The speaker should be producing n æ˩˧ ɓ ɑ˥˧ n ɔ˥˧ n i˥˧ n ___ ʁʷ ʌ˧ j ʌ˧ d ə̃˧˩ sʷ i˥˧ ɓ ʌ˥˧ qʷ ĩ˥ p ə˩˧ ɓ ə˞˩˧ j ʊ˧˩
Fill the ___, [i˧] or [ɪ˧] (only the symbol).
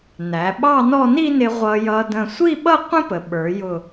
ɪ˧